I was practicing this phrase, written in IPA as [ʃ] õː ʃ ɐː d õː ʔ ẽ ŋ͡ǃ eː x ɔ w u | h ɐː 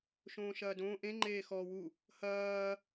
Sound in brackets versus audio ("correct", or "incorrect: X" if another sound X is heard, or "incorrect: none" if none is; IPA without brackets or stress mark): correct